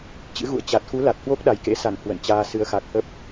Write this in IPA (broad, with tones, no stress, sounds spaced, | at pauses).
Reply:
t͡ɕ ɨ̰˧˥ ɣ ṵ˧˨ ə̯ t͡ɕ a˨˩ t̚ x u˨˦ l a˨˩ t̚ h w o˦˥ k̚ ɗ a˨˩ j k ḛ˧˥ s a˧˩ n h w ə̰˧˨ n t͡ɕ aː˧ s ɨ˨˦ ə̯ x a˨˩ k̚ h ə˦˥ p̚